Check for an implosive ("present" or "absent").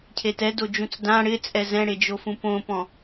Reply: absent